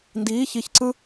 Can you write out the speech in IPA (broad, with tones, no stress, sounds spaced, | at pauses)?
n d iː˧˥ ç i˧˥ ç ǀ ɯ˥